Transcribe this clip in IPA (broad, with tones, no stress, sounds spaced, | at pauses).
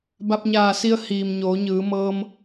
b a˧ p̚ ɲ aː˧˩ s i˧ ə̯ h iː˩ m ɲ oː˩˧ ɲ ɯː˩˧ m ɤː˧ m